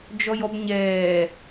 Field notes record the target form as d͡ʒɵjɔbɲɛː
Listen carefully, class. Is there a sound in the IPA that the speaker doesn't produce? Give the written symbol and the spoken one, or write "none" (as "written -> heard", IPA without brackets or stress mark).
ɵ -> ɔ